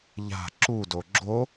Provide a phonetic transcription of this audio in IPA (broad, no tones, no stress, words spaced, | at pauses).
ʎa̤ ǁudo ɡ͡ǁo